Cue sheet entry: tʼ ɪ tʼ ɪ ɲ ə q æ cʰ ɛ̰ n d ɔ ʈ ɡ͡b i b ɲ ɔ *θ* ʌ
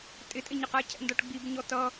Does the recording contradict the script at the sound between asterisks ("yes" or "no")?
yes